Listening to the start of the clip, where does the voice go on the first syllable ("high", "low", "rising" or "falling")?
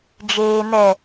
low